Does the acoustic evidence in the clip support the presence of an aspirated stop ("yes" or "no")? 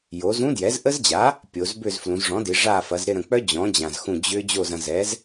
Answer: no